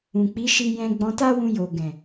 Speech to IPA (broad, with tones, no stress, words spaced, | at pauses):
ũ˨k͡pi˨˦ ʃi˧jɛ̃˧ ɡ͡bɔ̃˧ta˦wũ˧ jo˨ɡɛ̃˨